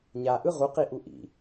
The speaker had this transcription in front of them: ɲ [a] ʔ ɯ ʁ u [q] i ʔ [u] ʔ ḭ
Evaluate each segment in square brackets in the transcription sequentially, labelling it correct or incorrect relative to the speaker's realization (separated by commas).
correct, correct, correct